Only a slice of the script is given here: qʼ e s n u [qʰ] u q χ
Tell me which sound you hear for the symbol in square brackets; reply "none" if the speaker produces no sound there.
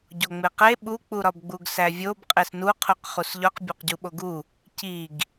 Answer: qʰ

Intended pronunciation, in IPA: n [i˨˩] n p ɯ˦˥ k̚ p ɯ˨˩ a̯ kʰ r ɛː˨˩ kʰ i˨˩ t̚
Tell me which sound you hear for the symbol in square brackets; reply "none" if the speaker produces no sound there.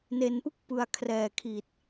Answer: e˨˩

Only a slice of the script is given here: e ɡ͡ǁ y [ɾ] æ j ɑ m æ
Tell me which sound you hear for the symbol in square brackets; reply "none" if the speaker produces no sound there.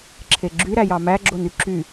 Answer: ɾ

